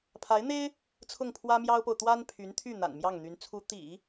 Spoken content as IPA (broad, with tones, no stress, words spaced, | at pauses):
pʰa˧˥ɪ̯n̪e˥ɪ̯ | t͡sʰʊ˥˩ŋpʰwä˥mjɑ˥ʊ̯po˨ʊ̯ t̪wa˥npʰy˧˥nt̪ʰy˥˩ n̪a̰˨˩nmjɑ˥˩ŋn̪y˧˥n t͡sʰu˧˥ t̪ḭ˨˩˦